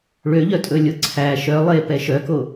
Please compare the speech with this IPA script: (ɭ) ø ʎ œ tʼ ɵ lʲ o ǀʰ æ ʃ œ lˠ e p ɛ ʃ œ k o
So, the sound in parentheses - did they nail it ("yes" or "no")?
yes